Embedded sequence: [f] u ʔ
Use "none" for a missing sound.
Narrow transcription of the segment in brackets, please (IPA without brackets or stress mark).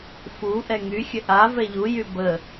f